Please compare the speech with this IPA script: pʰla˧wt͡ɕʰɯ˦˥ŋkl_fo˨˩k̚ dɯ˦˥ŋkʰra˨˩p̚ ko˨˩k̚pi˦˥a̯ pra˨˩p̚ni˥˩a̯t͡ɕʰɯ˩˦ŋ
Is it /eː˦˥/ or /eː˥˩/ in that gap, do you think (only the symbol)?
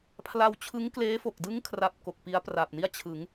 eː˦˥